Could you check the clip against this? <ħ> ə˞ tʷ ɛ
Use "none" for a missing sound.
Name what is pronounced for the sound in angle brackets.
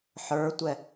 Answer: ħ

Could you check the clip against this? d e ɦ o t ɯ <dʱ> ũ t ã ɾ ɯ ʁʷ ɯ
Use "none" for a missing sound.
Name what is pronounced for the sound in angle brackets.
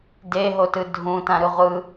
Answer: dʱ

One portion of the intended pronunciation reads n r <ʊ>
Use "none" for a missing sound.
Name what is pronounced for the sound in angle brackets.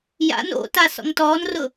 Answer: ʊ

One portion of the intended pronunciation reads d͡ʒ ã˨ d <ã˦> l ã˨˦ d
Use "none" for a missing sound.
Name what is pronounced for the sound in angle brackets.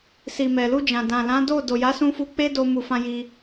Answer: ã˨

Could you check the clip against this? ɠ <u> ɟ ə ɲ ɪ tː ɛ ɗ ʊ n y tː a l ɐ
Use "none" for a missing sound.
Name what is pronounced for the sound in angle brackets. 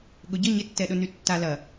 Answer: ʊ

